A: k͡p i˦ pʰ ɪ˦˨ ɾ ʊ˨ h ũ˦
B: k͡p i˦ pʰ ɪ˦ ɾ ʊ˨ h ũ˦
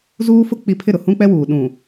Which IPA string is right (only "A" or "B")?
A